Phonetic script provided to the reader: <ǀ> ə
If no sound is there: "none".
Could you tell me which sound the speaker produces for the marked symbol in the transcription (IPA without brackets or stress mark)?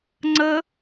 ŋ͡ǀ